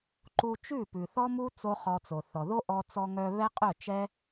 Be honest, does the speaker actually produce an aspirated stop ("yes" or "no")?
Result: no